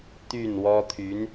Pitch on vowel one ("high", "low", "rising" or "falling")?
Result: falling